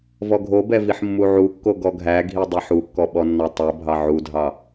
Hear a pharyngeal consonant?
yes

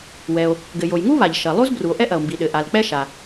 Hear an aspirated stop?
no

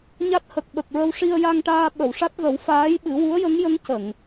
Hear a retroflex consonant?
yes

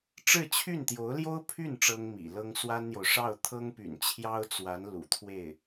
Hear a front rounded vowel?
yes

